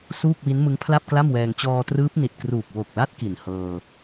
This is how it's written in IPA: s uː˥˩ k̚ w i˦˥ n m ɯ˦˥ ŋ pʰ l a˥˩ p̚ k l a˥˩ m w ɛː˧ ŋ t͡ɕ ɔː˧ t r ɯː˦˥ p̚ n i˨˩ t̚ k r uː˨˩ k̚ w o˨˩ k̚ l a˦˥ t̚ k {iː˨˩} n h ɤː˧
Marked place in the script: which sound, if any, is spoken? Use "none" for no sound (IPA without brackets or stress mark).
i˨˩